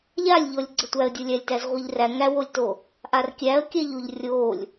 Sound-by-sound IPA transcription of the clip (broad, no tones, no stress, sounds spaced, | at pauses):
ʎ a lʲ ʎ ɔ lʲ ɡ͡ǀ ə tʷ æ ə̯ dʲ o lʲ æ lʲ t æ z ʁʷ i ʎ r æ ŋ æ w o lʲ t o | ʔ a r kʲ æ ə̯ kʲ æ ʎ o ʎ rʲ o lʲ